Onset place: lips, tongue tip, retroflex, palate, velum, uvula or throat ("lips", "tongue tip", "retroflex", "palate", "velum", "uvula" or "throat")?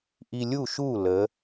throat